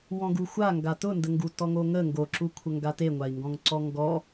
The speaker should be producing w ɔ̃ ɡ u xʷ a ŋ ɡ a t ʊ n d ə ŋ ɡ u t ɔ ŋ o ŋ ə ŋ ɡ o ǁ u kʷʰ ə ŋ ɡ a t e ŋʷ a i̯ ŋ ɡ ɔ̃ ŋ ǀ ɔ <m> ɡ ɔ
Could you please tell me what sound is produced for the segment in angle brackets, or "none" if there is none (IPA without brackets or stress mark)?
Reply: ŋ